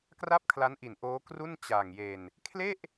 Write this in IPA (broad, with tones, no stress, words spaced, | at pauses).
kra˥˩p̚kʰla˦˥nʔi˨˩n ʔoː˦˥kru˥˩n t͡ɕa˨˩ŋje˧n | kʰle˥˩ʔ